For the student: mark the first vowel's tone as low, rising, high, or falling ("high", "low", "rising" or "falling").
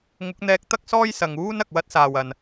rising